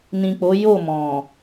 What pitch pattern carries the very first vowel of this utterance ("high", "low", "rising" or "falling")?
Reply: low